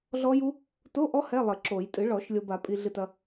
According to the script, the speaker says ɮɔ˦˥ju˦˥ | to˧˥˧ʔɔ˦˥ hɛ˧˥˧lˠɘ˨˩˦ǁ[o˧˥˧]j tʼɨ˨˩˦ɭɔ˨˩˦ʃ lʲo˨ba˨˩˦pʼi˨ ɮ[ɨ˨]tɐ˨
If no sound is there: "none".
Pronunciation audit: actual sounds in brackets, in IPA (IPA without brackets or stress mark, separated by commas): o˨˩˦, ɨ˨